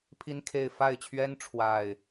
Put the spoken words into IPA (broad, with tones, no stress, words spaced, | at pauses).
pʰi˦nkʰe˥˨ɪ̯ fa˥˨ɪ̯t͡ɕʰɥɛ˦n ʈ͡ʂʰwa˥˨ɪ̯